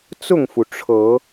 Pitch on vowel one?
falling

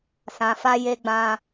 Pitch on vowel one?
low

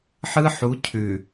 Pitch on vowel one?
high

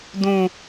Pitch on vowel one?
high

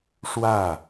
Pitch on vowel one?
falling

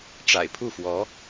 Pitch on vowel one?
low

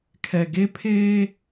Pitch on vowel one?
low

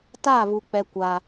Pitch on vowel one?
falling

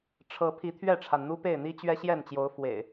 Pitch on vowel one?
rising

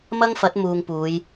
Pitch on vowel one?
high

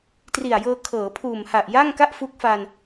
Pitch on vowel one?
low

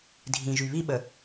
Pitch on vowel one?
low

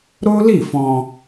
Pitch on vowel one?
high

